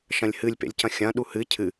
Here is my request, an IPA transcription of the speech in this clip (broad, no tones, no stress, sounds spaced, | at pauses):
ʃ ɐ̃ lʲ h ɨ lʲ p ḛ lʲ c ɐ̃ xʲ ɐ̃ ɗ u h ɨ cʰ ɨ